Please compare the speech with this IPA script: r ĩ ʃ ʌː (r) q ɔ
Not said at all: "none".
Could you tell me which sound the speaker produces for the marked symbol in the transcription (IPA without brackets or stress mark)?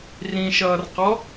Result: r